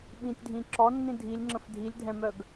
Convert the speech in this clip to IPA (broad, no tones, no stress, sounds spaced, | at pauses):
ɓ ĩ tʲ dʱ ĩ ǁ ɔ nː ĩ dʱ i lʲ ŋ͡ǁ ə̃ f dʱ i lʲ dʱ ɛ̃ m œ ɡ